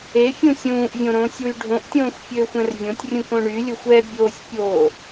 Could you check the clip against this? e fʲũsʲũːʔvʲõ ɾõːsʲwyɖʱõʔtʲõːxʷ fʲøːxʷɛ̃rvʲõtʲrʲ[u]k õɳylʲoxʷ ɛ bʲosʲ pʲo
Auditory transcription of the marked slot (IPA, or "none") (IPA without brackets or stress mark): ũ